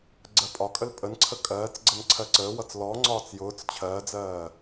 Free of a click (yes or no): no